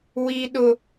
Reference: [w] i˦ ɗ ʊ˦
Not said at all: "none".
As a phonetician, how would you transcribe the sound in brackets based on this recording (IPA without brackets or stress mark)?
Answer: w